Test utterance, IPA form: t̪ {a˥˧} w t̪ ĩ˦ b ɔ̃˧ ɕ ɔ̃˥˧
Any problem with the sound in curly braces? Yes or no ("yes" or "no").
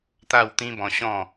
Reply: no